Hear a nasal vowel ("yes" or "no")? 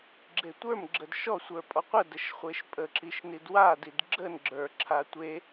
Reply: no